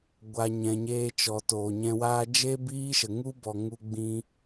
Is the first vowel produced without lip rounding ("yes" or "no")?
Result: yes